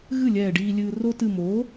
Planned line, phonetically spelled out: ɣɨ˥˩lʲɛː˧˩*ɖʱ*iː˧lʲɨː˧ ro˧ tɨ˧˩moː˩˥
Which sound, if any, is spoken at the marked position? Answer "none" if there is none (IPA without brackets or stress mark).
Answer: ɖ